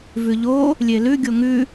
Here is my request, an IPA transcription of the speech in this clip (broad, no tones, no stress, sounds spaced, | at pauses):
v ʉ ʎ o | lʲ e l ʉ ɡʲ o ŋ ʉ